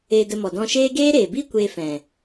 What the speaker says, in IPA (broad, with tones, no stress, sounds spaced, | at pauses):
eː˧ d ə˧ m ɔ˨ d ɔ̃˧ ʃ eː˦ ɡ eː˦ ɾ eː˨ b i˦ kʷ eː˧ f ɛ̃˨